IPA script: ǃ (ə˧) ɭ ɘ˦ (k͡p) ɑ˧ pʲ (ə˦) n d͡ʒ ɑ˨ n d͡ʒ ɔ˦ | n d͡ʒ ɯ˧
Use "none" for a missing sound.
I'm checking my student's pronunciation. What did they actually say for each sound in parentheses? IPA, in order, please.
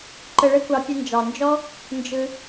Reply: ə˧, kʷ, ə˧

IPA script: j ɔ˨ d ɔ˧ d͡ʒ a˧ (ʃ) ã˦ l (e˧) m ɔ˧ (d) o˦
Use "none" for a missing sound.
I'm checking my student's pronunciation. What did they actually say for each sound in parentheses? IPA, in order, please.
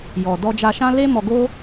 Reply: ʃ, e˦, ɡ

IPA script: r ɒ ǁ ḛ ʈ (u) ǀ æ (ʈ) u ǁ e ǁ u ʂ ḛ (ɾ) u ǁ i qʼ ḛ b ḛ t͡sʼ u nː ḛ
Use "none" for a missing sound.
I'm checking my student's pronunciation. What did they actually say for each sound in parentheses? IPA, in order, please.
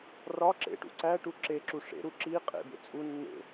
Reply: ṵ, ʈ, ɾ

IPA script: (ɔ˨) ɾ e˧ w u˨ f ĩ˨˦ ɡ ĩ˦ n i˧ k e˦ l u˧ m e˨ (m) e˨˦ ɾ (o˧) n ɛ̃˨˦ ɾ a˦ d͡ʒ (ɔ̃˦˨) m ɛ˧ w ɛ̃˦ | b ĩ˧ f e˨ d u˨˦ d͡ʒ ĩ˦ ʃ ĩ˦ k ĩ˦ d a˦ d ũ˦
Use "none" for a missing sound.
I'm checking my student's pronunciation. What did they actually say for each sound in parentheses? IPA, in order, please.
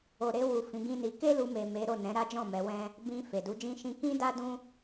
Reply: o˨, m, o˦˨, ɔ̃˦˨

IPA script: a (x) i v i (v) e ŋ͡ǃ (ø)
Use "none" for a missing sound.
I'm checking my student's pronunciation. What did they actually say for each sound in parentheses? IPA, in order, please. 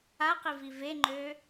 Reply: q, v, ø

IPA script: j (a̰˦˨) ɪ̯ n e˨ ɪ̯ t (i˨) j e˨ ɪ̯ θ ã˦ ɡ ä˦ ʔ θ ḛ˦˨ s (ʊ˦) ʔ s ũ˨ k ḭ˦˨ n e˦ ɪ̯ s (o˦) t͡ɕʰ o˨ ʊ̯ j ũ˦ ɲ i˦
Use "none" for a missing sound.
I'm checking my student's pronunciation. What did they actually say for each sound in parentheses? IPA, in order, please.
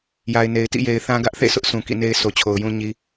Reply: a˨, ḭ˦˨, ʊ˦, o˨

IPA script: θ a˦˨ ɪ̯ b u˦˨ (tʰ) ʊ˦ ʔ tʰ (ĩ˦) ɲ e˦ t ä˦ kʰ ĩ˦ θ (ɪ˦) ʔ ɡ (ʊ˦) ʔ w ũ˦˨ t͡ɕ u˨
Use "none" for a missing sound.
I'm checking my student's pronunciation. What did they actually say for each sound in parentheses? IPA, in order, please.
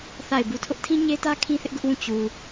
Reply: tʰ, ĩ˦, ɪ˦, ʊ˦

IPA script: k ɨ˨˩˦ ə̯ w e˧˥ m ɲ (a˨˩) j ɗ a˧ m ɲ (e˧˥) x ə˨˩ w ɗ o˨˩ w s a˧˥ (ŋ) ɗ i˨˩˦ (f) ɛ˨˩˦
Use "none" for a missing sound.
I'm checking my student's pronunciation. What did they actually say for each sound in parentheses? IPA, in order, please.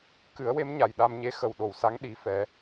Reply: a˨˩, e˧˥, ŋ, f

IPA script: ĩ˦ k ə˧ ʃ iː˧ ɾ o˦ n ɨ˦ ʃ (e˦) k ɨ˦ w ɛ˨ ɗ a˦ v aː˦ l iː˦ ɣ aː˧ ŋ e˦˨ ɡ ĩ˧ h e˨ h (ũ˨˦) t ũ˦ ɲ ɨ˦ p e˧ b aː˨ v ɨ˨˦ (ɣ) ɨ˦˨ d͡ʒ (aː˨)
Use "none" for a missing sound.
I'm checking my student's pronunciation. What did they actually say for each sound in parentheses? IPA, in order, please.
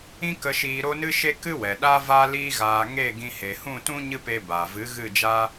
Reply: e˦, ũ˦˨, ɣ, aː˦

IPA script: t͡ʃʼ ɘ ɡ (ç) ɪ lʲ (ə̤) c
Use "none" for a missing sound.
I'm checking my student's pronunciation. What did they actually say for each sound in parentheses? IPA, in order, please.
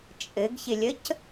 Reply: ç, ə

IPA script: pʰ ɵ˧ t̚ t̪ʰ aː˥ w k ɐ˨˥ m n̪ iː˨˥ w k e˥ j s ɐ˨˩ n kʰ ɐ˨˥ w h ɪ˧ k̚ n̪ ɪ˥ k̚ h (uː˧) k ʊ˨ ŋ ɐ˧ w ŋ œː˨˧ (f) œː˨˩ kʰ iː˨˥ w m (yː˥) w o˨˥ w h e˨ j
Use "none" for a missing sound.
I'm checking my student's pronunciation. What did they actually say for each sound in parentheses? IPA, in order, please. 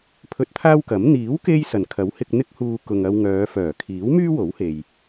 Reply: uː˧, f, yː˥

